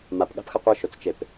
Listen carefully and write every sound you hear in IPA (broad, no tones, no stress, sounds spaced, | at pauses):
m a p ɠ a̤ p x ʌ qʷ ɯ ʃ o t͡s t͡ʃ e p